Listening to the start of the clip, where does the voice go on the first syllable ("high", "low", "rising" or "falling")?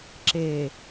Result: low